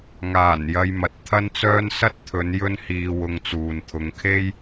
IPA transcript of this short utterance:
ŋ aː˨˩ n j ɐ˧ j m ɐ˨ t̚ t̪ʰ ɐ˥ n t͡s œː˥ n s ɐ˥ t̚ t̪ʰ ɵ˨˧ n j ɵ˥ n h iː˧ w ʊ˧ ŋ t͡s uː˨ n t̪ʰ ʊ˨˧ ŋ kʰ e˥ j

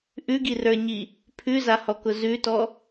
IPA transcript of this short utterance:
ʔ ʉ ɡ i r ə˞ ɲ i | pʰ ʉ z a h ɔ k ʊ z ʉ t ɔ

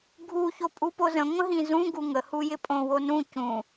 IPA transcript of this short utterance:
ɡʱ u ç o pʼ u p o z ə̃ ŋʷ ə̃ ɦ ĩ z ũ ɡ u ŋ ə h u j ɪ pʼ õ w o n ũ c ũ

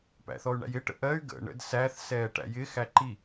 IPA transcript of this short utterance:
p æ̰ θ ɔ y̯ ɳ æ̰ j ɪ ʈ ə̰ ʔ ɜ y̯ ɡ ə̰ ɳ ə̰ d s æ θ s ɛː ʈ æ̰ j ɪ x æ ǃ i

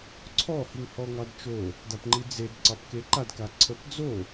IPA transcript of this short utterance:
ǀʰ ɔ h i ŋ h ɔ ŋ ɑ d t͡ʃ o | d a p ŋ͡ǃ i d͡z e d ǀ ɑ p k e ǃ a d k a ǀʰ ə p d͡z o

